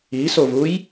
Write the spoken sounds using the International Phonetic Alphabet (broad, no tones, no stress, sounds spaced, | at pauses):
i s o v u j